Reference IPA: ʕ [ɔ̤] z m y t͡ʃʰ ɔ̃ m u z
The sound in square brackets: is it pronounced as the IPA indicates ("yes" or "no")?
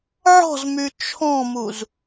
yes